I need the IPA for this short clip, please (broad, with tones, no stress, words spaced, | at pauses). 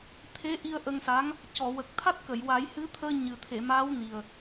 t̪ʰe˧˥ ʔi˧ə̯ʔə˧ŋsa˧˥ŋ | cɔ˨˩˨wə˨˩k̚t̪ʰa˦˥t̚ kə˨˩˨jwa˨˩˦jhɨ˧˥t̪ʰəː˧ ɲɨ˨˩t̪ʰe˨˩˨maː˧˥wni˨˩ə̯